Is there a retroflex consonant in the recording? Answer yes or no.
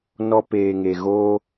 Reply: no